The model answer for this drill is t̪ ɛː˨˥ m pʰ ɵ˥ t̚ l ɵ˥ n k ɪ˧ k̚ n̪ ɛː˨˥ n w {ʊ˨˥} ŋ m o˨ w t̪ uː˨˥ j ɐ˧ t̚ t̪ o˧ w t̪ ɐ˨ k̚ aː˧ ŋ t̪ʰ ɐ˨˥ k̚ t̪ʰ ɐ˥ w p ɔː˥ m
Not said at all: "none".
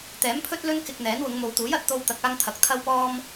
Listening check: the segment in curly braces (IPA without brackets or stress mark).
ʊ˨˧